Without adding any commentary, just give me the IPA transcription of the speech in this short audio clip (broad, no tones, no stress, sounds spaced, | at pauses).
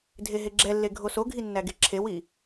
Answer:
dʱ e ɦ e ɡ͡ǁ ɛ lː e ɡʱ o s o ɡʱ i nː æ ɡ e ǁʰ e w i